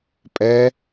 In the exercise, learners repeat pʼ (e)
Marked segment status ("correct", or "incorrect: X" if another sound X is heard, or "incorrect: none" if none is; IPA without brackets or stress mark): incorrect: ɛ